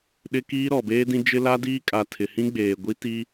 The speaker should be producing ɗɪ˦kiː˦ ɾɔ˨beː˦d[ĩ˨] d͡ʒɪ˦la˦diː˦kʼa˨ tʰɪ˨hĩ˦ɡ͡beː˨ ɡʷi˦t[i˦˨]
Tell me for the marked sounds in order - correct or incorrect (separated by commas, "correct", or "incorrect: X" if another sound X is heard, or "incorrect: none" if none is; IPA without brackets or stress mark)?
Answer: incorrect: ĩ˦, incorrect: i˦